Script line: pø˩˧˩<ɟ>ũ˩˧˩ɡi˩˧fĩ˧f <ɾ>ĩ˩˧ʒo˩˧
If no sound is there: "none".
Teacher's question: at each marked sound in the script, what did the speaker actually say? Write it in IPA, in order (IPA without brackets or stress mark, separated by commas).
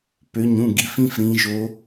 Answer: ɲ, ɾ